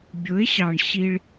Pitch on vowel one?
rising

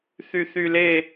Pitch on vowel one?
high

